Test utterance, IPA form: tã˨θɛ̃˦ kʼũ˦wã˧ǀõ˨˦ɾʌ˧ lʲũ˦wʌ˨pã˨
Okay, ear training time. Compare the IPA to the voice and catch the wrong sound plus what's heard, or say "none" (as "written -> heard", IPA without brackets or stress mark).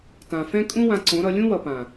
θ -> f